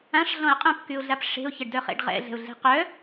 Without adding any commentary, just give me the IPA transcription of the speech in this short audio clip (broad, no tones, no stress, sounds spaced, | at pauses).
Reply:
ã ʂ ɮ ɔ̃ ə̯ qʼ œ̃ p k y ʊ̯ ɮ a p ʂ e̤ ʊ̯ ç ɛ ɖ d œ χ ḛ ɖ ʁ ɛ̰ ɮ ɛ̤ ʊ̯ ɮ e̤ q œ